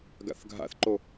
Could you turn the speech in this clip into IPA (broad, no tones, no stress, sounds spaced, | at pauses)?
ɡ a̰ θ ɡʱ a̰ θ ǃ o